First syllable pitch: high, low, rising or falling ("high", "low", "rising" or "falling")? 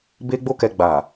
high